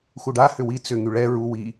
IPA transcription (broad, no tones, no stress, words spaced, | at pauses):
xuɖa hʏwi t͡sʏ ŋyɭɛ ɹu wi